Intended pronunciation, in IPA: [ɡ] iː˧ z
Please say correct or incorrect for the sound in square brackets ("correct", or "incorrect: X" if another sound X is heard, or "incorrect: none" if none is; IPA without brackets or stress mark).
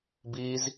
incorrect: b